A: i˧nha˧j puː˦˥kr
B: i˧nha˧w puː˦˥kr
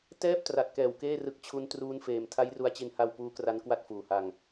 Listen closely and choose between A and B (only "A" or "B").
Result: B